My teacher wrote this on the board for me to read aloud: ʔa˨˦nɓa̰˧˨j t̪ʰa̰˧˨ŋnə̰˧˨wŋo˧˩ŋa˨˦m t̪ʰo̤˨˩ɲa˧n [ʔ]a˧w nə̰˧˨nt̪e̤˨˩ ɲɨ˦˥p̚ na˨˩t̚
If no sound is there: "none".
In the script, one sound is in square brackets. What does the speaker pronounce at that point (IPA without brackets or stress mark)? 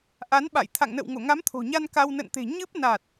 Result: k